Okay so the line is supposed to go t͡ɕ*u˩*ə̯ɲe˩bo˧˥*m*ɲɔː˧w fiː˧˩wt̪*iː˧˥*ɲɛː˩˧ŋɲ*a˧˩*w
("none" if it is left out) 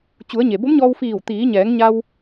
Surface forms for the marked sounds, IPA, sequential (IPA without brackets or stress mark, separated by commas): u˩˧, m, iː˩˧, a˧